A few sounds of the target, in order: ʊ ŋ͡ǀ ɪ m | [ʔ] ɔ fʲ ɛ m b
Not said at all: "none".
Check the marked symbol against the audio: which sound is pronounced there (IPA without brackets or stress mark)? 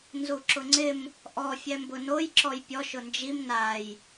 ʔ